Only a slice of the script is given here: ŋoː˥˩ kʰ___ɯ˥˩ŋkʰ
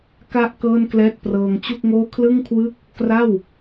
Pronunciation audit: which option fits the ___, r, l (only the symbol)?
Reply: l